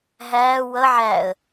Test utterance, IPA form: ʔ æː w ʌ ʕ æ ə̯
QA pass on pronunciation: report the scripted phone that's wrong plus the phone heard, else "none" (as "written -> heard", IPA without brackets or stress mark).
ʔ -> ɦ